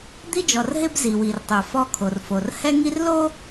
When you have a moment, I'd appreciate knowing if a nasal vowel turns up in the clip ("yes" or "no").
no